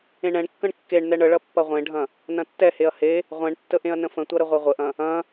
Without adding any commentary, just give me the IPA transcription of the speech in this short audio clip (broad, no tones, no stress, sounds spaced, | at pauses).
ẽ ɳ ɛ̃ ɳ kː ə̃ ɳ kː e ɳ n ɛ ɳ ə ɭ ɐ pː ɐ ʁʷ ẽ ɖʱ ɐ̃ | n ɐ̃ tː ɛ h e ɐ̯ h e | ʁʷ ɛ̃ ɳ tː ə ʔ ẽ ɐ̯ n ə̃ f ə̃ tʷ ɐ ɾ ə ʁʷ ɛ ʁʷ ə ʔ ɐ̃ | ɐ̃